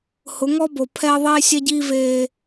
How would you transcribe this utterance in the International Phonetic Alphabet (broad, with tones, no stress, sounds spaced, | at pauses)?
h ʊ˨˦ ŋ ɔ˦ b o˨ pʰ ɛ˦ ɐ̯ ðˤ eː˦ sʲ ɛ˦ ɟ iː˦ v eː˦